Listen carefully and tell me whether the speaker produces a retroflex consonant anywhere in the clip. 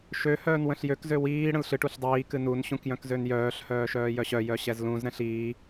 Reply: yes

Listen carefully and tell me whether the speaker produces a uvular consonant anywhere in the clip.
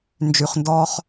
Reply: yes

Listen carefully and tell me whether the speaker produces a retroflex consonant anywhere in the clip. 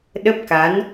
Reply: no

